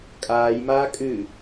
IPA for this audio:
kʼaːjmaː kʼɨ

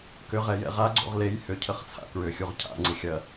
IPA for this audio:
kʏʁɛ jɛ̰ʁaɡ͡ǀo̰ʁ lej hʏcʰəχ t͡sʰa̰kɹʏxʲuʁ cʰa̰ŋ͡ǀɪxʲɐ

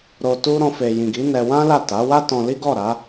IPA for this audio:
ɾo˧tu˦ ɾɔ̃˧fe˨jĩ˨ɡi˨˦ nɛ˧wã˦la˦˨ ta˨˦wa˦ tɔ̃˧li˦ ɡɔ˦˨ɾa˨˦

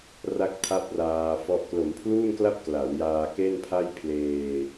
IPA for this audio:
ra˥˩k̚tʰa˥˩p̚ raː˧fɔ˦˥ʔ klo˩˦mpʰluː˥˩nkla˥˩p̚ kla˩˦wjaː˧ ke˥˩npʰa˥˩jpʰleː˧

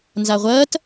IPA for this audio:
nzaʁʷɐːt

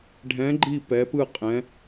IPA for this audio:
ɖʱɛ̃˨˥ɡ͡ǃi˦˨ pɛ˩˧pɯ˦˨ qʼɛ̃˨˥

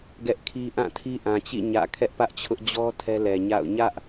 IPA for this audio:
ɡɛ˦ʔkʰi˦ ʔã˦˨tʰi˦ʔã˨t͡ɕḭ˦˨ ɲä̰˦˨ kʰɛ˦ʔpä˦ʔt͡ɕʰʊ˦ʔ d͡ʑɔ˦ tʰɛ˦lɛ˨ ɲa̰˦˨ʊ̯ ɲä˦ʔ

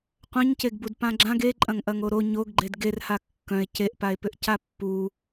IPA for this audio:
qʷœ̃ɲceɡbud pãɡ͡ǁãɡ eǃʼɐ̃ŋʔɐŋo ɾo ɲoɡɡ͡ǃed ɡerha kːœ̃e̯ ceʔpae̯pʏʔ capːu

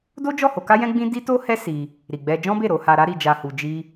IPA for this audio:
do˦d͡ʒɔ˦˨ ho˧ka˦jɛ̃˦ɡ͡bĩ˦ di˦to˦hɛ˦ si˧ | ɾi˨ɡ͡bɛ˧ d͡ʒɔ̃˦be˦˨ ɾo˧ ha˧ɾa˦ɾi˧d͡ʒa˧ hu˧d͡ʒi˦

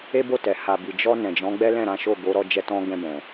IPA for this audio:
e˦bo˦˨tɛ˨ ha˨bi˨ d͡ʒɔ˧ nɛ̃˨d͡ʒɔ̃˨˦ ɡ͡bɛ˦lɛ̃˦˨ɾã˨˦ʃo˦˨ ɡo˨˦ ɾɔ˧d͡ʒɛ˧tɔ̃˧ ɡɛ̃˧bɛ̃˨

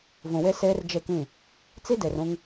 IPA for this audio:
vũ˨we˦ seː˦rd͡ʒe˦˨kĩ˦˨ | t͡si˦de˨r ũ˦ŋ

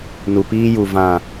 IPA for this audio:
nu˨piː˦ju˨ vã˨

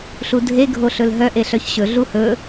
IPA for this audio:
ɬudʱe ɡʱoɬɵlɦœ ʔeɬœçɕɵ ɮuhɵ

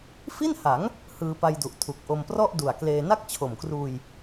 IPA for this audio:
fi˥˩nha˩˦ŋ | hɯː˧pa˧jdu˨˩ʔ tʰu˨˩k̚ʔo˧mprɔ˥˩ʔdu˨˩a̯ kleː˧ na˥˩k̚t͡ɕʰo˨˩mkruː˧j

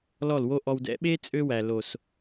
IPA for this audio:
lɔ˦˨lwo˦ ʔɔ˨wdɛ̰˨˦ɓe˦ t͡sʼø˦wæ˨ lo˨s

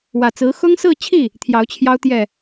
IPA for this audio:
wä˨˩t͡sɹ̩˧˥ xʊ˥ŋsɹ̩˥˧t͡ɕʰi˥˩ | t̪ʰjɑ˧˥ʊ̯t͡ɕʰjɑ˥ʊ̯t̪jɛ˥˩

